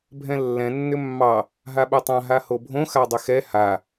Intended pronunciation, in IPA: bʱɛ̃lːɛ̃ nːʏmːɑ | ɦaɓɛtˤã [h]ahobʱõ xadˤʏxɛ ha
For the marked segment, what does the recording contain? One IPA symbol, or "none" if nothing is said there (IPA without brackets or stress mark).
ɦ